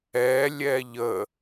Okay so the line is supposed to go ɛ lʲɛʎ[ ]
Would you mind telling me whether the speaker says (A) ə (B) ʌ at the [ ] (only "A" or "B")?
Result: A